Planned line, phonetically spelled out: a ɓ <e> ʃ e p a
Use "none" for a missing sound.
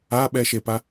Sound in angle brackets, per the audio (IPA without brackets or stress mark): ɛ